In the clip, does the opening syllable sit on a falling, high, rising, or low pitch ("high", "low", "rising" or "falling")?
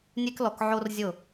high